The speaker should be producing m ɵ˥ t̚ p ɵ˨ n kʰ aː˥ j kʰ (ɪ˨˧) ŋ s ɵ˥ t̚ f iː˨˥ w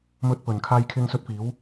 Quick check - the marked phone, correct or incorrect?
incorrect